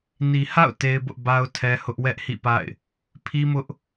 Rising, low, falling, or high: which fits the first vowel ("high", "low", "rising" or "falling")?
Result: low